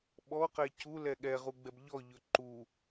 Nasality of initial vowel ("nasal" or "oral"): oral